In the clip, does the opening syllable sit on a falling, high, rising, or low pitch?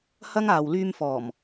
high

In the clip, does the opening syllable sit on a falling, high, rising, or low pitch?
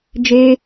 high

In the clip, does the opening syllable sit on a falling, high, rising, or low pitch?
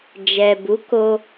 low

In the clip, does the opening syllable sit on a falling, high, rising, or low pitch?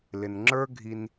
low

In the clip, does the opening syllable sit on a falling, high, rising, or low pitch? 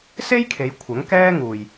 high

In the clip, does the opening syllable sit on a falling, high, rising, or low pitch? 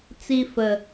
high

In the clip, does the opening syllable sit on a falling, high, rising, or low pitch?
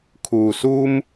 low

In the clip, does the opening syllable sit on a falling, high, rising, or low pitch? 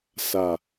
low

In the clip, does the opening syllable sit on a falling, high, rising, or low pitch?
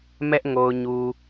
high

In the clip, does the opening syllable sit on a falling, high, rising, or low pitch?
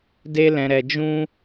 high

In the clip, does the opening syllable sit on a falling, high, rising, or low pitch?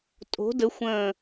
rising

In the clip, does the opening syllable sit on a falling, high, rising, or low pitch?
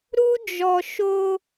high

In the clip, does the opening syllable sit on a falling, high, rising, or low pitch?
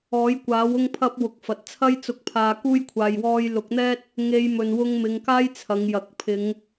rising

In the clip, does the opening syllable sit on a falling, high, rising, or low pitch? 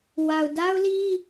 low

